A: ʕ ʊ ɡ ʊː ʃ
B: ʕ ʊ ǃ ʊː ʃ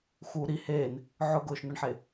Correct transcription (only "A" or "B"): A